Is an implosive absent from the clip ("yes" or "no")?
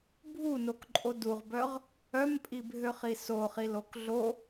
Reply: yes